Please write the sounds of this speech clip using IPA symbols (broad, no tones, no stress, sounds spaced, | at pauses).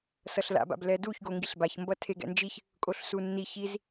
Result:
s ʌ ɬ l a̰ b a̰ b l ɛ d u ç ɡ o ŋ ɡ i ɬ b a ç m b ʌ tʰ e ɡ ɛ̰ n d͡ʒ i ç | kʼ o ɬ s u nː i ç i z